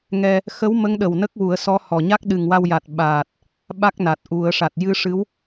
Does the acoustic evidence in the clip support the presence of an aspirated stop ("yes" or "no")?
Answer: no